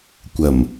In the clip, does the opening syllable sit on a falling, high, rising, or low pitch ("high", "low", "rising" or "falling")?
low